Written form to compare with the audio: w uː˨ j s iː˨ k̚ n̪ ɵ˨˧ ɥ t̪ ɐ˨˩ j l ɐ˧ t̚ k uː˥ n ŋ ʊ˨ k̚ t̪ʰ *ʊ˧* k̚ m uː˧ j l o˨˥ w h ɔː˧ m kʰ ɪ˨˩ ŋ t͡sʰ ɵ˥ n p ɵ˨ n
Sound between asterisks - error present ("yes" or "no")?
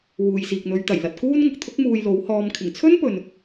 yes